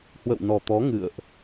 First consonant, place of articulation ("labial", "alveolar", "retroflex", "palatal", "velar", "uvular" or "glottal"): glottal